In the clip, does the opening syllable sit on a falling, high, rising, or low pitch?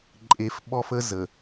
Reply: low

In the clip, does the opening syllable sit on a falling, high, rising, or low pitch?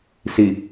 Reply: low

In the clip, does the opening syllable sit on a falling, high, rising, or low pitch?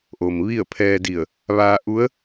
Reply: low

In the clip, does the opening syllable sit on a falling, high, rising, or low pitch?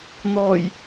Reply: low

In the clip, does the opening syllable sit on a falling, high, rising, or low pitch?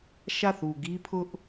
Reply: falling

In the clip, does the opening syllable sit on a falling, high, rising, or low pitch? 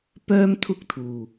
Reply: high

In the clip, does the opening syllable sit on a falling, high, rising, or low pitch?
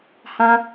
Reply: high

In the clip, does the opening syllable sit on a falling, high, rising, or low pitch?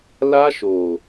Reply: high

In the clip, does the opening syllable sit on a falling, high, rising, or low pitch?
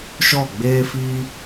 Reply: falling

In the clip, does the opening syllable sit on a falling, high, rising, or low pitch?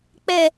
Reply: low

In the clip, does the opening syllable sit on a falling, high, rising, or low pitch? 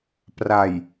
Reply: low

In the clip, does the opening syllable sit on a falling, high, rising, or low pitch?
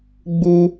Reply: high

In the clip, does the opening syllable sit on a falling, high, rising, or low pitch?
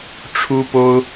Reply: high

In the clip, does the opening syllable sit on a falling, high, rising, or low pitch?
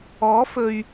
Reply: rising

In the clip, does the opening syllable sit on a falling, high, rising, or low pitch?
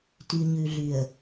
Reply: low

